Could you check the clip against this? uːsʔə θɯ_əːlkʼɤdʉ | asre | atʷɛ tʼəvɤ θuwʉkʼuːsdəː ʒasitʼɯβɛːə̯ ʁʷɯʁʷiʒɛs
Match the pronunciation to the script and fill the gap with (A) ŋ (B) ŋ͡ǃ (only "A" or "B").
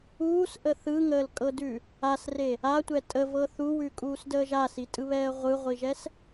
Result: A